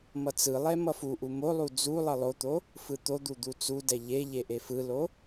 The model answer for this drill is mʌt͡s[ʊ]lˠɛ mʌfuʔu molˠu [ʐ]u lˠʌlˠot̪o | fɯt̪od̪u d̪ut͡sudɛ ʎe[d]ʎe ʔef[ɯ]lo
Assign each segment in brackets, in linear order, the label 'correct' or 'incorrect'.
incorrect: ɯ, incorrect: d͡z, incorrect: none, correct

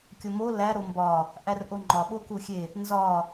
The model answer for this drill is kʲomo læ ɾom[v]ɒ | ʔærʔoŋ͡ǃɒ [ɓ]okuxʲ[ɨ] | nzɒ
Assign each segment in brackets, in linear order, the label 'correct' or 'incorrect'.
incorrect: b, correct, incorrect: e

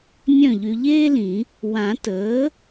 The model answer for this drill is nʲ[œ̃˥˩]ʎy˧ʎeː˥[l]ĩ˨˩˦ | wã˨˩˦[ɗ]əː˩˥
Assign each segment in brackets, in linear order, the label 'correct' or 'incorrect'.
correct, correct, incorrect: t

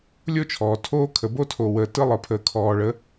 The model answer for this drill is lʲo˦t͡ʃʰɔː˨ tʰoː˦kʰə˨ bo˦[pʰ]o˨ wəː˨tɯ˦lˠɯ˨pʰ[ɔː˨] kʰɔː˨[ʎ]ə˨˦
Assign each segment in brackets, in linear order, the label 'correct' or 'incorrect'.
incorrect: tʰ, incorrect: əː˨, incorrect: ɭ

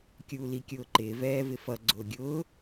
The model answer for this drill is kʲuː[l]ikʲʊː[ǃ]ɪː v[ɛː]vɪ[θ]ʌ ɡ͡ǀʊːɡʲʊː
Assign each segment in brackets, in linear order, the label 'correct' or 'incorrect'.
correct, correct, correct, incorrect: f

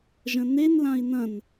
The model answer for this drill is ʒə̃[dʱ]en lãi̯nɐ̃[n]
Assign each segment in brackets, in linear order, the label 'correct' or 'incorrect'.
incorrect: n, correct

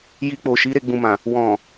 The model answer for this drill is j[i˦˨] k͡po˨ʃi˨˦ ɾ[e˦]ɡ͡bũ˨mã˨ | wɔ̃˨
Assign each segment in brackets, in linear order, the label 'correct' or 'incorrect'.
incorrect: i˧, incorrect: e˧

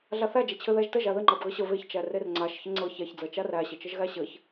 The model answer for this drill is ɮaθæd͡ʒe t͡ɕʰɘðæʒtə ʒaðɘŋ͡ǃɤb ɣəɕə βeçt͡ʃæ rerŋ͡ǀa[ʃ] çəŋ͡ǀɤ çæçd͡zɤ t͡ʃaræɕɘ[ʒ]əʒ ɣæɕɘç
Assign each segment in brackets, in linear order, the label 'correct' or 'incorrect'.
correct, incorrect: t͡ʃ

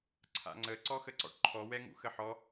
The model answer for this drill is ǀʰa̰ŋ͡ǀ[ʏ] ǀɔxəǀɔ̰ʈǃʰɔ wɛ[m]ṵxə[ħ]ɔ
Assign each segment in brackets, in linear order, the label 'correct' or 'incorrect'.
incorrect: ə, incorrect: ŋ, correct

